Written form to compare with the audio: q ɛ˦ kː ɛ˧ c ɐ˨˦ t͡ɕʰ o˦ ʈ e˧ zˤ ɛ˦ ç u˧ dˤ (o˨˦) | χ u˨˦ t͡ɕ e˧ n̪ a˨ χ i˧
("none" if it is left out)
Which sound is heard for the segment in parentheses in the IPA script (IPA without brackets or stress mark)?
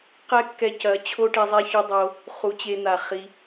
o˧